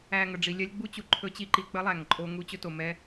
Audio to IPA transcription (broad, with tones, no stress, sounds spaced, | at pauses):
æ˨ ŋ ə˨ ɖ͡ʐ i˨ lʲ ɛ˧ lʲ ɡ͡b u˦ t͡ɕ u˨ ǃʰ ɵ˦ t͡ɕ i˦ ǃ i˨ k͡p ə˦ lˠ æ˨ ŋ ǃʼ o˧ ŋ u˧ t͡ɕ ɵ˧ t o˨ m ɛ˧